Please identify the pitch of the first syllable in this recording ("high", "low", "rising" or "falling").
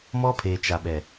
high